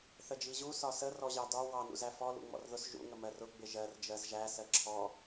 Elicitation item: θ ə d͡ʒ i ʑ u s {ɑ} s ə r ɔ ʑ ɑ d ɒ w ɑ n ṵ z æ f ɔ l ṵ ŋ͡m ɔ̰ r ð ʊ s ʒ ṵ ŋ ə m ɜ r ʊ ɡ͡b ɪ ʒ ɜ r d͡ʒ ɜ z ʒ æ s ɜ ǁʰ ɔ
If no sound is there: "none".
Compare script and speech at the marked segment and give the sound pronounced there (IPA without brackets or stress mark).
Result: ɒ